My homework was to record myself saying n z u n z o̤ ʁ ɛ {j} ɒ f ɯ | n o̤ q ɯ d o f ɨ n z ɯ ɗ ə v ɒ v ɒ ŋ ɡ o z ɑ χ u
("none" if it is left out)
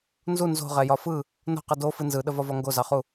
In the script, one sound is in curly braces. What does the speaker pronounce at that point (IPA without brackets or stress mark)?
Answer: j